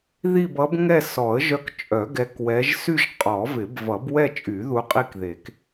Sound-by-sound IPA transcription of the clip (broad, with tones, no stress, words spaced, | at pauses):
ði˥˧bʌ˧˥bŋɛ˥˧ sɔ˨˩˦ə̯ʒœ˧˥kt͡ʃʼœ˨˩˦ ɡɛ˧˥kwɛ˧˥ʒ sy˥˧ʒqʼɔ˨˩˦vɪ˨˩˦b vʌ˨˩˦bwɛ˥˧t͡ʃʼy˨˩˦ ðu˧˥qʼi˥˧kðe˨˩˦k